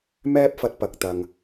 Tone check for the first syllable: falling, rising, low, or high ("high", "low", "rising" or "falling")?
high